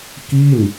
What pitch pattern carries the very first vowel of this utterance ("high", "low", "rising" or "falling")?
falling